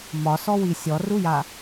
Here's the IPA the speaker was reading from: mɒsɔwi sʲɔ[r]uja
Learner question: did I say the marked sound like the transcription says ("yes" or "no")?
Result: yes